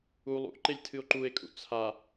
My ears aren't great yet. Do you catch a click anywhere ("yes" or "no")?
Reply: yes